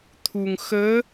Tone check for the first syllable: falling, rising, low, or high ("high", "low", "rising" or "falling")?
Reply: low